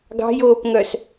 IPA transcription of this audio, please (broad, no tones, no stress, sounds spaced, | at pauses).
ɡ ɑ̤ j oː p ŋ œ s